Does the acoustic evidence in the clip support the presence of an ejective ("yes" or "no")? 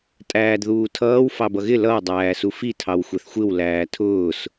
yes